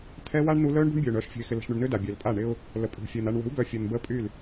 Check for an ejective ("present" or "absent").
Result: present